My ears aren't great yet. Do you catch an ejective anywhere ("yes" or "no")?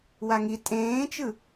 yes